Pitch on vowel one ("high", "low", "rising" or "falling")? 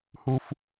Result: low